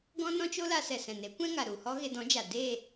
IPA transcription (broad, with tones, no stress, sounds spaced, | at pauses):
ɡ ɔ̃˦ n ɔ̃˦ t͡ʃ o˦ l a˧ s ɛ˨ s ɛ̃˨ n e˨˦ kʷ ɛ̃˦ ŋ a˨ ɾ u˨ h ɔ˦ ɣ e˧ d ɔ̃˨˦ d͡ʒ a˨ d e˦˨